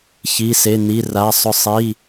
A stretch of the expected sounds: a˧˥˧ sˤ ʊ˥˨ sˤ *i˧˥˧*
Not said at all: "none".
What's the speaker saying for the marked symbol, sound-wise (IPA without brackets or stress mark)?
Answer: i˧˥˧